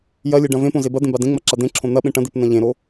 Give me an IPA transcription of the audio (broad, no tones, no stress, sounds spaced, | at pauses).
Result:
j ɐ lʲ e ɖ ɐ̃ v ẽ p õ z e b ɐ d̪ ẽ b a d ẽ ŋ͡m ɐ ǁ a d̪ ẽ ǁʰ õ n̪ ɐ ɓ ẽ ʈ ɐ̃ d̪ e p n ɐ̃ ʎ ẽ ɾ o